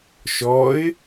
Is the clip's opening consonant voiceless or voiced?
voiceless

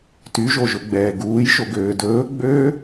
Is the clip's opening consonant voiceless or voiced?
voiceless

